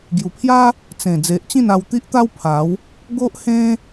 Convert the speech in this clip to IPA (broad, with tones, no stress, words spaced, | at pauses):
ɡju˨˩pʰja˦ | t͡sẽ˨˩ d͡ze˨ʔt͡ɕĩ˥˧n a˧wt̪i˦ʔt̪a˦w pʰa˨˦w | ɡo˦ʔhẽ˦